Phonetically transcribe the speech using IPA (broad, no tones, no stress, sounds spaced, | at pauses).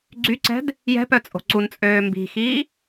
ɡ͡ǀ y ǀ ɛ̤ d | j ɛ̤ p œ t͡sʼ o̤ ǀ u n t͡sʼ øː m b i̤ x iː